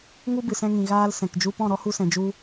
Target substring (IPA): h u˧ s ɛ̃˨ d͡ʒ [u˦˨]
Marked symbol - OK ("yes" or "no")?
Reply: no